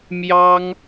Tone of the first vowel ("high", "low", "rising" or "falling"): high